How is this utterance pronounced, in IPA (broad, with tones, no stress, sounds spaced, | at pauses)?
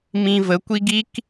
m ĩ˧ v ə˨˦ kʷ i˦ ɡ i˦ k